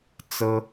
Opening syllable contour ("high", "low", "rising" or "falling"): high